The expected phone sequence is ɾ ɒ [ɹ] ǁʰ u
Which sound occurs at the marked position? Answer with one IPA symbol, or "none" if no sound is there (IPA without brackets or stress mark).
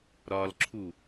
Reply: l